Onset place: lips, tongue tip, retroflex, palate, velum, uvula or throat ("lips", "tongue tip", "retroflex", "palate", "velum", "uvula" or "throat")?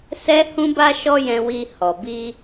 tongue tip